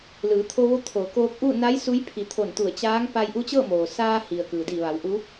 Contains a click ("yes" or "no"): no